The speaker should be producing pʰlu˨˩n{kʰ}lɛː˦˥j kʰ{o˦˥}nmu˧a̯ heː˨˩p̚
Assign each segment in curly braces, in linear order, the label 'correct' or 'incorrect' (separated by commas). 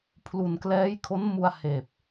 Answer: incorrect, correct